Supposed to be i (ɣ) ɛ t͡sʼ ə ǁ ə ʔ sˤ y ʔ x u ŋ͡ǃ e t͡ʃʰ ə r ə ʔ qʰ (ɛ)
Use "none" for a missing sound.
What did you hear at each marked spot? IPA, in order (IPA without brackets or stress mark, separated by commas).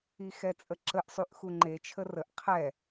x, ɛ